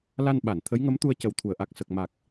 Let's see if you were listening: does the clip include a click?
no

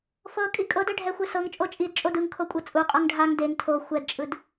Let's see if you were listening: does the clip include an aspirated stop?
yes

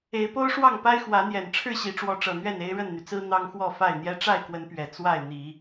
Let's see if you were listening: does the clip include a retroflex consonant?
yes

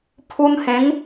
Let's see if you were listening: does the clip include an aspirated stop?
yes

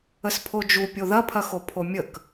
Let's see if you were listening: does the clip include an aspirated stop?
yes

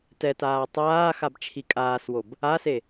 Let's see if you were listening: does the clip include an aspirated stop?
yes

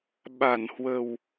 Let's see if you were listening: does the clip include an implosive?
yes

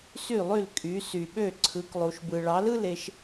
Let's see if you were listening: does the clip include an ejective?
yes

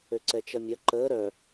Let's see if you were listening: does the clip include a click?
yes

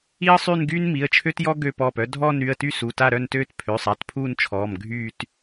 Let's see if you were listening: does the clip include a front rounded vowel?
yes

